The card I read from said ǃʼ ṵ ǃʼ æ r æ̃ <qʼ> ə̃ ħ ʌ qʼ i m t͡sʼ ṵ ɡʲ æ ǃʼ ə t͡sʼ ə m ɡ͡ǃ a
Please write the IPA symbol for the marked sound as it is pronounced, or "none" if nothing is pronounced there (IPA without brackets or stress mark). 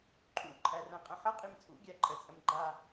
qʼ